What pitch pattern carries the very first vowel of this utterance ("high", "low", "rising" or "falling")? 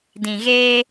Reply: low